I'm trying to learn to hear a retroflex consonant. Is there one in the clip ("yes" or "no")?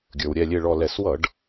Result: yes